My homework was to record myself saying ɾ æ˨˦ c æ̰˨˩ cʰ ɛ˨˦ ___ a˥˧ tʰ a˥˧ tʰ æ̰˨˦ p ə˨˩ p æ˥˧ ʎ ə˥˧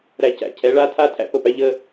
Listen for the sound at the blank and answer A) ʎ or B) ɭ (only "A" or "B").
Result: B